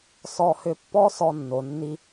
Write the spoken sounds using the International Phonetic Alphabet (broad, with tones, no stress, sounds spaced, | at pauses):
s ɔ˧ h ʏ˧ pː ɔ˥ s ɔ˧ nː o˩ nː i˧